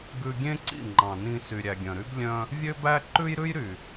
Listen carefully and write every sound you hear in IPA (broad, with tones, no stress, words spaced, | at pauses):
ɡʉ˧ ɡʲẽ˦ǀḭ˦˨ŋ͡ǃɑ̃˨ nĩ˧sy˨ ɾʲæ˨ɡʲœ̃˨ɾy˦b lʲœ̃˦ | vʲø˦bæ˦ ǃʉ˦jɾʉ˦jɾy˨